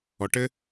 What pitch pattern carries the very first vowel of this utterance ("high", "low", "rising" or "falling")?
low